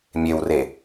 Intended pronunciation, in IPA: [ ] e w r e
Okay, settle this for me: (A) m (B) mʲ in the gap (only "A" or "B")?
B